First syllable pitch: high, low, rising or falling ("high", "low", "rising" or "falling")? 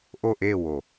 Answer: falling